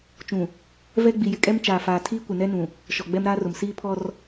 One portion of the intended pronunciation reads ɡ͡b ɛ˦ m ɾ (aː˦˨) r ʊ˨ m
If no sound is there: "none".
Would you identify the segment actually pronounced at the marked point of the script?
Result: aː˦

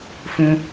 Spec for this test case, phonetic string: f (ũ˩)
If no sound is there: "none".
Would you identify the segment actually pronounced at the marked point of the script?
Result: ũ˩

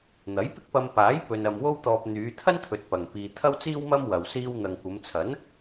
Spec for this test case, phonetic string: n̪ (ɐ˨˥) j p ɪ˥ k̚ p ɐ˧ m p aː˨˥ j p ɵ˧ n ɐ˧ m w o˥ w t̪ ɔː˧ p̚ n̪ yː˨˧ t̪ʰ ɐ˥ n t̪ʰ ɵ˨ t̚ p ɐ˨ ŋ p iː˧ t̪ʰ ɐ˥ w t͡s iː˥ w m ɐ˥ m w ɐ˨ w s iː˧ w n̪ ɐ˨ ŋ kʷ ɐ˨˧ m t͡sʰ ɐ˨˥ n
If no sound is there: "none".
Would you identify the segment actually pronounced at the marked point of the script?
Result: ɐ˨˥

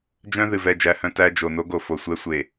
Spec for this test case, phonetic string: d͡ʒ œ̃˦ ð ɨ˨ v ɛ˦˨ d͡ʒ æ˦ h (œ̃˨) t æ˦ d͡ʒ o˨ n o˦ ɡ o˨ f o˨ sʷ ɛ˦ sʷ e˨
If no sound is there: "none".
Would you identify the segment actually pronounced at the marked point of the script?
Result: œ̃˦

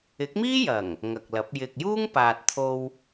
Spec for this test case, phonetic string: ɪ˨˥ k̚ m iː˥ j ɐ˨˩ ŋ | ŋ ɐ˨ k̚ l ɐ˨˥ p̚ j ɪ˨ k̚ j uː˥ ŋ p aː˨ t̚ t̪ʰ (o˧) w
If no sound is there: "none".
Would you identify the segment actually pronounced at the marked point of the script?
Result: o˧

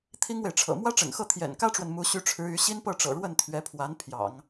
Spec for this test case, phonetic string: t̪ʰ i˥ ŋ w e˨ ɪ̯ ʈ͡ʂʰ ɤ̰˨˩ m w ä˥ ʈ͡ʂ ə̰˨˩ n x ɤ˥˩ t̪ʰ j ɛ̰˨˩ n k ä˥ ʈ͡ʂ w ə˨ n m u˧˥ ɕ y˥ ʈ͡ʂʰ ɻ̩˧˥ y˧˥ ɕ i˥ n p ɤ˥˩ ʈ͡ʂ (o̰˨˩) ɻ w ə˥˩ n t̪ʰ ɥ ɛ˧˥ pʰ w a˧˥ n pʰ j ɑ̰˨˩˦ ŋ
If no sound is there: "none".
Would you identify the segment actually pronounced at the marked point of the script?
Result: ɤ̰˨˩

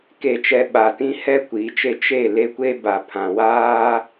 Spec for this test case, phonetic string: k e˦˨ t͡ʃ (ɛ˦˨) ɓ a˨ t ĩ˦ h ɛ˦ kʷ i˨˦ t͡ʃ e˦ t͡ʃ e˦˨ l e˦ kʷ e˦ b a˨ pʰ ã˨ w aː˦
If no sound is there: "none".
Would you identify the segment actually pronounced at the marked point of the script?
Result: ɛ˦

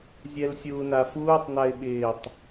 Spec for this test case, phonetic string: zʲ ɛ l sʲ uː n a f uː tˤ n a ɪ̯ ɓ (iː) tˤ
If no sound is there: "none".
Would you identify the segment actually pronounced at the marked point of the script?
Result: ɪː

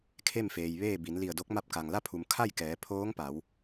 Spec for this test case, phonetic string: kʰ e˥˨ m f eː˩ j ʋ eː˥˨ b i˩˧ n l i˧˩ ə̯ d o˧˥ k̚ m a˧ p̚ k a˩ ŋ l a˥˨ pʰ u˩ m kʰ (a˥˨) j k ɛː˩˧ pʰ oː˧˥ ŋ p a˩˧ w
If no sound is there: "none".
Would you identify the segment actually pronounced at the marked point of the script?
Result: a˥˨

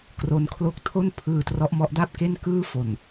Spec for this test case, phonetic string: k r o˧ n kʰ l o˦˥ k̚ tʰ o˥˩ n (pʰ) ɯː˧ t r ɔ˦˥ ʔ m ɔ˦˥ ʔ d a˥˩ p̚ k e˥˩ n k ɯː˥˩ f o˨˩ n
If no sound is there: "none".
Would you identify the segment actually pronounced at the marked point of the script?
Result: pʰ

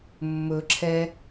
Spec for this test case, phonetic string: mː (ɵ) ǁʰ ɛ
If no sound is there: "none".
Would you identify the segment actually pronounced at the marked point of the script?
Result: ɵ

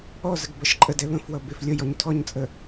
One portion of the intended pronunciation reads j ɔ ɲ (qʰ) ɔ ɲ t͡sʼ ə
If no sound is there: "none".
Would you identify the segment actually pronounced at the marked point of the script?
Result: tʰ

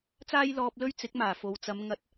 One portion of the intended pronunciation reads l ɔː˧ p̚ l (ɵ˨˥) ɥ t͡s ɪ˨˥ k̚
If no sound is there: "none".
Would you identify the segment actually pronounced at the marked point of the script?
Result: ɵ˥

